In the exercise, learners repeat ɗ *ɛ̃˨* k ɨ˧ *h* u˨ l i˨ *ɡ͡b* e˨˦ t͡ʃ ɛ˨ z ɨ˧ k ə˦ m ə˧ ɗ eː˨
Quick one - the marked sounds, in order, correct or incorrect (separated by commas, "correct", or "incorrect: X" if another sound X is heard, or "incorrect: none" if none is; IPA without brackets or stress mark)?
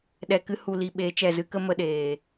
incorrect: ɛ˨, correct, incorrect: ɓ